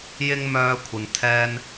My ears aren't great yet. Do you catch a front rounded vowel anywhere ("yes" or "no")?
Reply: yes